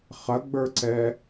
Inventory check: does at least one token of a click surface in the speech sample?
yes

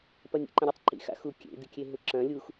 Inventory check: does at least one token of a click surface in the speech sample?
yes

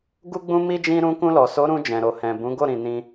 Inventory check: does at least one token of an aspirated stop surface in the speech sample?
no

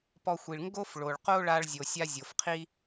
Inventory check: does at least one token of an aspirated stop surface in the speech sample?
yes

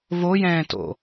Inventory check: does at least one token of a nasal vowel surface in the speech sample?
yes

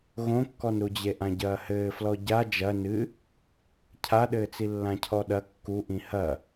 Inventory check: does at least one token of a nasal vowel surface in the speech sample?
yes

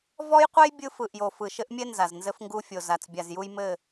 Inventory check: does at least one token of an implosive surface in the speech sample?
no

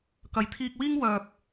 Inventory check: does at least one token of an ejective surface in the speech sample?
no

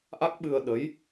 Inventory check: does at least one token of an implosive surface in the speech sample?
yes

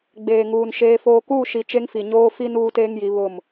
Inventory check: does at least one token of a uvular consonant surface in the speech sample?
no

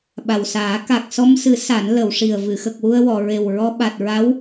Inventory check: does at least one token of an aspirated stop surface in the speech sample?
no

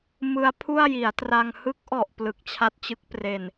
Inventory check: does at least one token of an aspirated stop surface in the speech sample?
yes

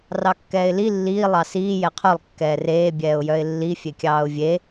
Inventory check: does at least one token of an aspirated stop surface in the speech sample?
yes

